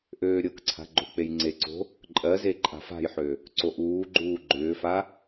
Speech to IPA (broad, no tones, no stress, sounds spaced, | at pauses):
ʔ øː ɾʲ ɤ k ǀʰ a̤ ɡ͡ǃ o̤ k͡p e j ŋ͡ǀ e ǀ o̤ | ǃʼ ɜ z e ǃʼ a̤ f a̤ j ħ ø | ǀ o ʔ uː ɡ͡ǃ uː ɡ͡ǃ ʏː f a